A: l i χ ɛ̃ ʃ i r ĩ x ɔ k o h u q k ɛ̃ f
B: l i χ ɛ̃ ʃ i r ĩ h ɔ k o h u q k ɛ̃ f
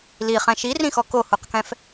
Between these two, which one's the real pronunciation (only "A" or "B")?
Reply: A